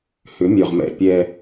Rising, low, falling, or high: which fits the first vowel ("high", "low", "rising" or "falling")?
rising